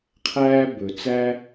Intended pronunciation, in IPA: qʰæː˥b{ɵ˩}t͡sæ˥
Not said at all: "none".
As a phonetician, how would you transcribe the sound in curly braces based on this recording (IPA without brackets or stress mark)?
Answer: ɵ˧